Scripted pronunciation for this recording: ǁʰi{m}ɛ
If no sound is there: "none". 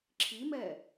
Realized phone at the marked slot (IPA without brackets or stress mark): m